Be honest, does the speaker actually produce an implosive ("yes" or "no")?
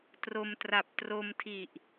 no